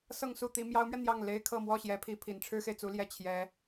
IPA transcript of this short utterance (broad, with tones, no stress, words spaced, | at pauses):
sɤ˥˧ŋsu˥˩t̪i˧˥ mjɑ˧˥ʊ̯mɥɛ˧ n̪jɑ˥˩ŋ le˥ɪ̯kʰɤ˥˧ mwɔ˥˩ɕjɛ˧˥pʰi˧˥ pʰi˨˩nʈ͡ʂʰɻ̩˥xe˨ɪ̯t͡su˧˥ ljɛ˥˩t͡ɕʰjɛ˧˥